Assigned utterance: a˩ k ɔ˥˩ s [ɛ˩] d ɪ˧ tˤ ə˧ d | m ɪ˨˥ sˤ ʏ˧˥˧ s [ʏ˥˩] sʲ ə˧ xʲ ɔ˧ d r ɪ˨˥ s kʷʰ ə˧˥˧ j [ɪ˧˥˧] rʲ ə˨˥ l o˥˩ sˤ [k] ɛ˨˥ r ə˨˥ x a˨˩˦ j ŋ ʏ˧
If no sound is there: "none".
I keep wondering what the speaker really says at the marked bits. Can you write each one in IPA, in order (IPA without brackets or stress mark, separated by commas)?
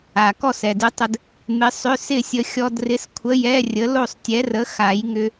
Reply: ɛ˩, ɪ˥˩, ɛ˧˥˧, tʲ